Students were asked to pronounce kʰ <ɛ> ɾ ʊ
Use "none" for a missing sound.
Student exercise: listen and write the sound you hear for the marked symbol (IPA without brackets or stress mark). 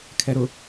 ɛ